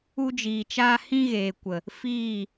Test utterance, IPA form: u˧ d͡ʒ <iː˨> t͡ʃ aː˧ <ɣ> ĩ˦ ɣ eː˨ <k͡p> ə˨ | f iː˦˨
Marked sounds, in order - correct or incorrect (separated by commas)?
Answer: correct, incorrect, incorrect